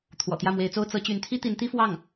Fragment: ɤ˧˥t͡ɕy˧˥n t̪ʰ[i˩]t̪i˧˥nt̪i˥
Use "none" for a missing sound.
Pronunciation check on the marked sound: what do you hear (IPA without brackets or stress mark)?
i˥